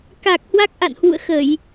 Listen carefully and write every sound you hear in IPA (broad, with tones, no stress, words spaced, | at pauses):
ka˨˩k̚ hwa˦˥k̚ʔa̰˧˨nhwṵ˧˨ə̯xə˧˩˨j